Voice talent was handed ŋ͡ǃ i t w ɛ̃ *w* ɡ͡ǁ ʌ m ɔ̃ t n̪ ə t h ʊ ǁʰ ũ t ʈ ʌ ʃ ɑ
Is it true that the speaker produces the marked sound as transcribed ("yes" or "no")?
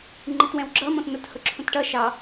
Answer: yes